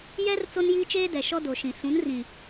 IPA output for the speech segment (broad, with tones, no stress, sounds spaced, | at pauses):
j ɛ˦ r t͡s o˦ n j iː˦ t͡ʃ eː˦ d ɛ˨ ʃ ɔ˦ d o˨ ʃ ĩ˨ s ũ˨˦ n r ĩ˨